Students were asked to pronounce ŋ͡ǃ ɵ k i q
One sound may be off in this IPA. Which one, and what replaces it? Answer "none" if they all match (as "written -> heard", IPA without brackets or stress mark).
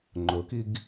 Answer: q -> ɡ